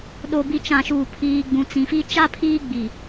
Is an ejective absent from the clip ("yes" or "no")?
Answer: yes